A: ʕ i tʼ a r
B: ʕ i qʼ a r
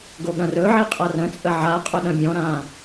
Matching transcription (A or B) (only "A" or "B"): B